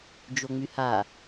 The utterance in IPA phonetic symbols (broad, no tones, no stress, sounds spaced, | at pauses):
d͡ʒ o ŋ͡m y h a